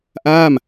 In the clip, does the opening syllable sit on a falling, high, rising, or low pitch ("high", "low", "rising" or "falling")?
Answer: falling